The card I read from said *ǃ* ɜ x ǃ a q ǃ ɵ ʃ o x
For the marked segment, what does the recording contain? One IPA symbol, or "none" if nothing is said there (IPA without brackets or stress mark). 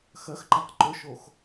x